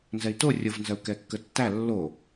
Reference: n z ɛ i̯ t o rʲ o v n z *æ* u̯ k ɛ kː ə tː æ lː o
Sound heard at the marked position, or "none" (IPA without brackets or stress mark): ɜ